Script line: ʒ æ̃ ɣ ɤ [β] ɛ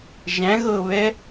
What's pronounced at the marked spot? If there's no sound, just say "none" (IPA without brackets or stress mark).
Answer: β